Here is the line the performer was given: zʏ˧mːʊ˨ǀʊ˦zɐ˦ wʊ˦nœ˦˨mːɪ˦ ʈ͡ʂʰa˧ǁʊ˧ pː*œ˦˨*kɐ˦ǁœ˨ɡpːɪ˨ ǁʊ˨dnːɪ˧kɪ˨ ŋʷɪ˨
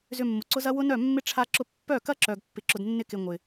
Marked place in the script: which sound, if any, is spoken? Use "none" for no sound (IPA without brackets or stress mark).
œ˦˨